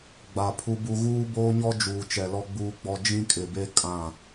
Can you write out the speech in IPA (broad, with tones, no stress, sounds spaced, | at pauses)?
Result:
ɡ͡b a˨ pʰ u˦ b u˦ ɣ uː˦ b oː˦ ɲ ɔ˦ d͡ʒ uː˨ t͡ʃ ɛ˨ l ɔ˦ ɡ͡b uː˦ ɡ͡b ɔ˦ d͡ʒ ĩ˦ kʼ ɪ˨ b e˦ kʼ ã˦˨